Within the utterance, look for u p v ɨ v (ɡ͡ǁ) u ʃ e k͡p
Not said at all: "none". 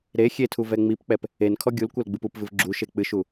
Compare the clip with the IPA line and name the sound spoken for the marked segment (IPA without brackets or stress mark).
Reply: ɡ͡ǁ